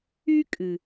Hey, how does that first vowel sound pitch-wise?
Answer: high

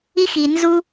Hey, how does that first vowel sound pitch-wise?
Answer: high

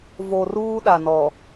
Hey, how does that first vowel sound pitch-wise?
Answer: low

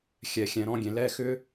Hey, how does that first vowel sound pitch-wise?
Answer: rising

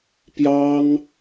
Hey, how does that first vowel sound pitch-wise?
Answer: high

